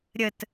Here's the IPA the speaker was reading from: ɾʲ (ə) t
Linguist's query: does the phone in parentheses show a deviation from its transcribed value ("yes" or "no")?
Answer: no